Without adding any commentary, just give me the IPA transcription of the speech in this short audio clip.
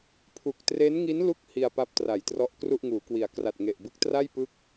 pʰ u˨˩ k̚ t r e˦˥ n ŋ i˦˥ n l u˦˥ k̚ h i˧ a̯ p a˦˥ p̚ t r a˩˦ j t r ɔ˦˥ ʔ k r u˥˩ ʔ ŋ uː˩˦ k w i˨˩ a̯ k r a˨˩ t̚ ŋ e˨˩ ʔ b ɯ˦˥ k̚ t r a˥˩ j p ɯ˦˥ k̚

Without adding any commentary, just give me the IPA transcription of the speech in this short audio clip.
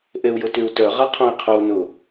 ʔ e u̯ j ʊ t y u̯ t œ ʁ a qʰ õ i̯ qʰ o u̯ n ʊ

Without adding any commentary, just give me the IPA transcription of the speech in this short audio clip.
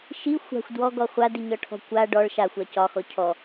ʃ i xʷ a̤ xʷ d w ɔ ɡ ɔ χʷ a d i ɲ ɒ ʈʰ ɔ̤ kʷ a ɖ ɔ ɭ ʃ a xʷ a c ɒ x ɔ cʰ ɔ

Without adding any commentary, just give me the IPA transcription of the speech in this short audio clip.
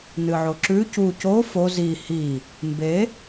n ɨ ʕ o ǁ ʉ c u c o f o z i h i | m b e

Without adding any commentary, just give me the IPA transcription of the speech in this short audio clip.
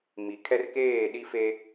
m i˨ kʰ ɛ˦ r k eː˦˨ ɗ i˦ f e˦

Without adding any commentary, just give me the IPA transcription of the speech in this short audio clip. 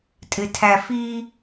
tʼ ɪ tʰ æ f i

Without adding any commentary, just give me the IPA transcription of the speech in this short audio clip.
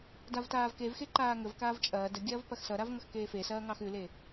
d a v t aː v k e v x e ǃ aː ŋ ə v k aː v t͡ʃʼ ɐː d ə ɡʲ ɐː v p ɐ x s ʌ ɾ a v ŋ ʌ x k eː f e s ɐː ŋ ɑ x ʉ l e

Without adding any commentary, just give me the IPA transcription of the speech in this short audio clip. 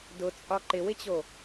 d ʊ t͡sʼ ɒ ǃ ɪ w ɪ t͡ɕ o

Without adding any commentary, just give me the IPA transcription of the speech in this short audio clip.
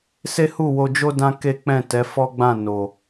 s e˦ h u˦˨ w o˧ d͡ʒ o˦ d ã˦ k e˦ k͡p ɛ̃˦˨ t ɛ˨˦ f ɔ˦ ɡ͡b ã˦˨ n o˨

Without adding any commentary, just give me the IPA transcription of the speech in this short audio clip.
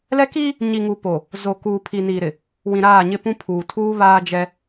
l ɛ˦ k iː˦ | ɲ i˨ ŋ u˨ p o˨ | z o˨ k uː˨ pʰ i˨ n iː˨ ɾ ɪ˨ | w ĩ˨ ɾ aː˦˨ ɲ ɪ˦ p ũ˦ pʰ uː˨ tʰ uː˦ β aː˦ d͡ʒ ɛ˦

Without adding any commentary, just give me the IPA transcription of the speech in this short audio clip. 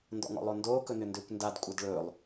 n d ɔ̰ ŋ ɔ̰ lˠ o n d oː k ɵ n ʏ n d ʏː kʷ n d a d kʷʼ a d ɭ ɵː lˠ

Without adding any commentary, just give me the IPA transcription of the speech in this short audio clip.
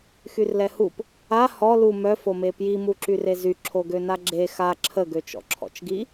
x y r l ɛ h u p | a h ɔ l u m œ f o m e p j i m u ǁ y r e z y ǁʰ o ɡ ø n a ɡ͡ǁ e x a ǁʰ ə ɡ ø t͡ʃ ɔ̰ ǁʰ ɔ̰ t͡ʃ ɡ i

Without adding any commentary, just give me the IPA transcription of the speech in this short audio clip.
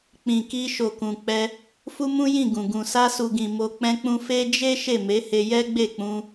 k͡p ĩ˨ k i˧ ʃ o˨ k ũ˨ k͡p ɛ˧ | f u˦ m ũ˦ j ĩ˦˨ ɡ ũ˨ ɡ ũ˨ s a˧ s u˨ ɡ ĩ˨ m o˧ k͡p ɛ̃˦ k͡p ũ˦ f e˦ d͡ʒ e˦ ʃ e˦˨ m e˨˦ h e˧ j ɛ˦ ɡ͡b e˦˨ k͡p ũ˧

